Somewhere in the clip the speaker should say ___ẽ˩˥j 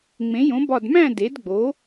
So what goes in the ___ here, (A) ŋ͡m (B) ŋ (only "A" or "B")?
A